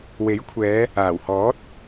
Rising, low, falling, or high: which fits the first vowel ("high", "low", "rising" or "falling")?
rising